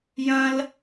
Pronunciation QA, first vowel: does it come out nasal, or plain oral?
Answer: nasal